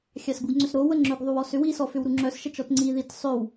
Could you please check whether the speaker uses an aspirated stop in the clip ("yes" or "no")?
no